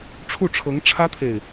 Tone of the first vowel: falling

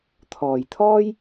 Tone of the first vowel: low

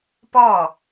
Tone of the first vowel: falling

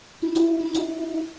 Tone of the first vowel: high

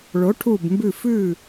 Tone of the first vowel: rising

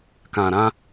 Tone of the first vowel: low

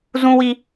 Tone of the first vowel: high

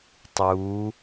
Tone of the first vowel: rising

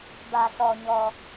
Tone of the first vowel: low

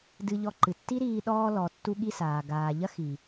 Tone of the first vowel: low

